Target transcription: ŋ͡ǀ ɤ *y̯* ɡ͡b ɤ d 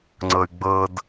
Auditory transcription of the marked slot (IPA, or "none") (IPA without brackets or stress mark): y̯